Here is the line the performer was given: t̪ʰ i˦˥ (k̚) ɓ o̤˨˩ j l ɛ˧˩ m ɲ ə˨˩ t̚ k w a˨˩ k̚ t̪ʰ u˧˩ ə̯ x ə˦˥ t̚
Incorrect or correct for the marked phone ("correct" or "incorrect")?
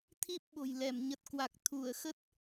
incorrect